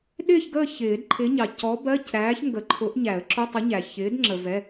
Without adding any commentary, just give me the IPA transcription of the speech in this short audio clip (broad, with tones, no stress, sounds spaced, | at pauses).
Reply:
ɗ ɪː˦˨ ç ɡ əː˦˨ ç ɪː˨˩˦ d ǃʰ ɪː˨˥ ɲ ɑ˩ c ɔ˨˥ b ɜ˧˥˧ c ɾ æː˨˥ ç ŋ ɡ ə˨˩˦ ǃʰ ʊ˨˥ ʔ ɲ æ˨˩˦ ə̯ ǁ ʊ˧˥˧ tˤ ʊ˨˥ ɲ æ˩ ç ɪː˨˥ d ŋ͡ǁ ə˩ v ɛ˩˧˩